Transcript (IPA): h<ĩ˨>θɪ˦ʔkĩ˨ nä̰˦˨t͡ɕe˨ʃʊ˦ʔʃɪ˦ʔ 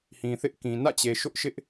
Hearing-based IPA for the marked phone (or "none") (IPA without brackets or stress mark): ĩ˨